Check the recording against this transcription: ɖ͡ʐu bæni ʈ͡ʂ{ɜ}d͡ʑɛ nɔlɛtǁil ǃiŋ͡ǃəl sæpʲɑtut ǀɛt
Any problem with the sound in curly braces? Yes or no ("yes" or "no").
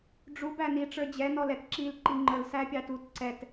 yes